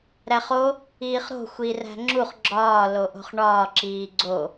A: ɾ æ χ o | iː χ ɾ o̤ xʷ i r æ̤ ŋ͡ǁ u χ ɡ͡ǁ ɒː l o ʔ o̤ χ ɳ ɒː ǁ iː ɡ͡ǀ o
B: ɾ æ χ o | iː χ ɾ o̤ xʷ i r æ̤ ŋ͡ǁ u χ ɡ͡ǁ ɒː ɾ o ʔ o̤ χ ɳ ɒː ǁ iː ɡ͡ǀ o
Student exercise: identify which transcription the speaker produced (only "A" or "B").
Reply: A